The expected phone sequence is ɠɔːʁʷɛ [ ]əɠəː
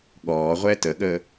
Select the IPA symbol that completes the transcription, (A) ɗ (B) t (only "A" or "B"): B